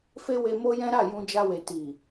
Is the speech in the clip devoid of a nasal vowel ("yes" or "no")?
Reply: no